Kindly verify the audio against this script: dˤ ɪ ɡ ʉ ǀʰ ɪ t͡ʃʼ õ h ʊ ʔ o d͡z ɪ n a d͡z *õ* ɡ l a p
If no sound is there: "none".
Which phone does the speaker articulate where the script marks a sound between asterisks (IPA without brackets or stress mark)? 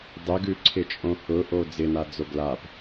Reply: o